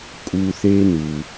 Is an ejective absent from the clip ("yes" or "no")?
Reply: no